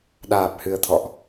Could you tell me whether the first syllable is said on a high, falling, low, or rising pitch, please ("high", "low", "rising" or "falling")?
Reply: low